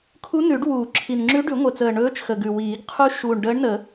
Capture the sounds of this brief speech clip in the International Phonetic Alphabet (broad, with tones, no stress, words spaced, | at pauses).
kʰu˧˥nʉ˨˩˦ɖ wuː˨˩˦ǁʰi˨˩n ŋ͡ǁʉ˧˥ɖʉ˨˩˦ŋʷə˨˩t͡səː˨˩ ɳɵː˧˥t͡ʃxə˨˩ɡʉ˨˩wiː˨˩˦ɡ qʰu˧˥ʃuː˨˩ɳ ɖəː˧˥ɳnə˨˩˦